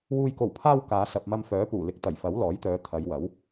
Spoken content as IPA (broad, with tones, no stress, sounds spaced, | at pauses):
w uː˨ j k o˨˩ w pʰ aː˧ w k aː˨˧ s ɐ˨ p̚ m ɐ˧ m f œː˨˥ p uː˨˩ l ɪ˨˥ k̚ t̪ ɐ˨˩ j f ɐ˨˥ w l ɔː˨˥ j t̪ œː˨˧ t̪ʰ ɐ˨˧ j w ɐ˨˥ w